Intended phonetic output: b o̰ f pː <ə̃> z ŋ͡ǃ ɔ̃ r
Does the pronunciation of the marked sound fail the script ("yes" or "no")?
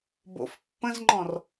no